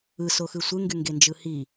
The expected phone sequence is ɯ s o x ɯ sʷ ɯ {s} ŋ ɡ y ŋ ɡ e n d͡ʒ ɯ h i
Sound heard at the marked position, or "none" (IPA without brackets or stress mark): none